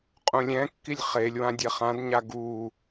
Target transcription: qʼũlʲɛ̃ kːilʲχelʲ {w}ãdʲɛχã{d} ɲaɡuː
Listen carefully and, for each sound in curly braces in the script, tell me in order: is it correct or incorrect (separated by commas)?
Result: correct, correct